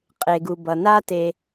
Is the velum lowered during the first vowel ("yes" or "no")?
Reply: no